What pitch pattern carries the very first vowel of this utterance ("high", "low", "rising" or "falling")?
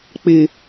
low